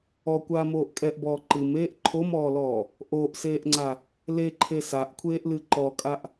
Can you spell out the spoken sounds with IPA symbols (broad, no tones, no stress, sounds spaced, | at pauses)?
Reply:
ɔ kʷ aː m oː ʔ kʼ ɛ ʔ b ɔː ǃ ɨ m eː ʔ ǃʰ o m ɔː l ɔː | ʔ oː ʔ s eː ʔ ŋ͡ǀ a | l e ǃʰ e s a ʔ kʷʰ eː ʔ l ɨ ǃ ɔ kʼ a ʔ